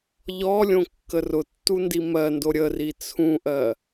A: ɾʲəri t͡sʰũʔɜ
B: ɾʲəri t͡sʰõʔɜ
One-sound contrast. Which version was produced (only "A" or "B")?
A